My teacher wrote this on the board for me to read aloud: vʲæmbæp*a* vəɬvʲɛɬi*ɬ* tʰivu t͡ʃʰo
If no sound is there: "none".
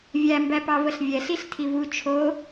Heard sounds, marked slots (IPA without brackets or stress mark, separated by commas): ɑ, ɬ